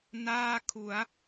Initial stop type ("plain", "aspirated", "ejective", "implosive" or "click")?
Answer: aspirated